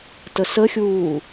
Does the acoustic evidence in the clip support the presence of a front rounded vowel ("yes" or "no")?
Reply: no